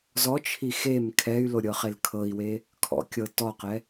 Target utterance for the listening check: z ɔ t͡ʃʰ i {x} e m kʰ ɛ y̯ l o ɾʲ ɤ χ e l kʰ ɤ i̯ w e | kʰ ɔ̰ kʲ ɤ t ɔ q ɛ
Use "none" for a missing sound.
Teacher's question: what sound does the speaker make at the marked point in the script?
x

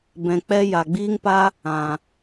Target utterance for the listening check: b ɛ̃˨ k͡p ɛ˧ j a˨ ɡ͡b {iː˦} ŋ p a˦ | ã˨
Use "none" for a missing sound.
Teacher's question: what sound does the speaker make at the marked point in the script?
iː˦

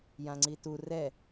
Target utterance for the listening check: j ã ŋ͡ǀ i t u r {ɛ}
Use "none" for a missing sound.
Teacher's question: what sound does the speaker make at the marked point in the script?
ɛ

